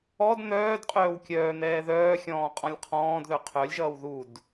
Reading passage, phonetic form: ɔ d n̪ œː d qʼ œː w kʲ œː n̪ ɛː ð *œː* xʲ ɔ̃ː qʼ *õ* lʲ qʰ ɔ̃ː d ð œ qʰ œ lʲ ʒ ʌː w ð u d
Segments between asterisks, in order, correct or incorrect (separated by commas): correct, incorrect